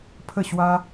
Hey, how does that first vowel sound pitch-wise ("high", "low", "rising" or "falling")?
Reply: falling